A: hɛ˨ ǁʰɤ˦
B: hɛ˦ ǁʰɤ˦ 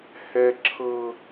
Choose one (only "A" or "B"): B